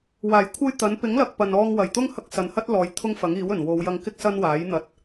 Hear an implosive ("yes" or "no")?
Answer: no